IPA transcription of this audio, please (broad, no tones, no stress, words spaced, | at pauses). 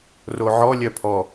roʕɔ lʲœpʰɔ